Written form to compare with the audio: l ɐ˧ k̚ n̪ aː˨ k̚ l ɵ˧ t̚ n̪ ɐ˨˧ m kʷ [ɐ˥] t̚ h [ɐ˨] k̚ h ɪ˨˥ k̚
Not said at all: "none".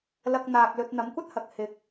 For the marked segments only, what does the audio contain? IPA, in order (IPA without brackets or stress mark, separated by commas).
ɐ˥, ɐ˨